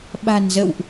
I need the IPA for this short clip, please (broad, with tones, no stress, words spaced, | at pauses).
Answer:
ɓa̤˨˩nzə̰˧˨wʔ